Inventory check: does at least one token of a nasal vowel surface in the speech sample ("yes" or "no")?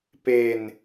no